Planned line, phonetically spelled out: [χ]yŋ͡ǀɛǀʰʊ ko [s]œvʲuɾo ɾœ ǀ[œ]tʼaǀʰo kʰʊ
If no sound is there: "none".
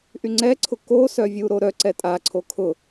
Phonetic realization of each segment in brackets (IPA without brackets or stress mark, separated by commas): ʔ, s, ɛ